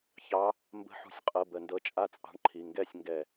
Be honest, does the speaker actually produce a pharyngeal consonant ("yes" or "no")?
yes